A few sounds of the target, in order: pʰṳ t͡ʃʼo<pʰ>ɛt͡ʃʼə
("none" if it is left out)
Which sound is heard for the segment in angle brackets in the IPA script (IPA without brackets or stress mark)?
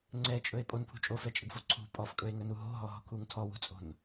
f